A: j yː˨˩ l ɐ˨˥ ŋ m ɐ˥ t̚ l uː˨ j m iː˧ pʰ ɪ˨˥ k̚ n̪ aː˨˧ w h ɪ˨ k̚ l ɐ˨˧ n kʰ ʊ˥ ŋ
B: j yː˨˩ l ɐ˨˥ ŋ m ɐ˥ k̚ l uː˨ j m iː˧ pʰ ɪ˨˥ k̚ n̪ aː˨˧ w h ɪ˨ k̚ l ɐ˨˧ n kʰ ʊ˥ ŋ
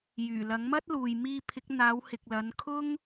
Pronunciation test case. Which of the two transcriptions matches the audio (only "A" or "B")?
A